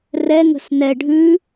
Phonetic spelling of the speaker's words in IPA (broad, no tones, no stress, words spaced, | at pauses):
rɛ ŋə̤snɛ ɖʱʉ